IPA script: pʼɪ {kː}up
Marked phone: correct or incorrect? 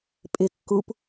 correct